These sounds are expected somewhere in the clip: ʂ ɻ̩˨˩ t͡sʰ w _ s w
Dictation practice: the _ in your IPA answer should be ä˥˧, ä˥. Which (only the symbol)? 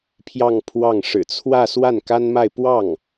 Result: ä˥˧